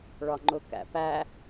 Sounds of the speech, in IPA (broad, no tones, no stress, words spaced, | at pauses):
ɭɒŋ͡ǃʊkæ̰pæ